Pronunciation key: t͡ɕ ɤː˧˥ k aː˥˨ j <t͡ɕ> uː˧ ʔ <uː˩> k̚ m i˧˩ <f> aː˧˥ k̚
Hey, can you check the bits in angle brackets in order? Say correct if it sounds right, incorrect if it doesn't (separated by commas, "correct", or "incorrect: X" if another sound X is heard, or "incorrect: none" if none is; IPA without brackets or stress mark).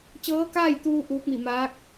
incorrect: t̪, incorrect: uː˧˥, incorrect: m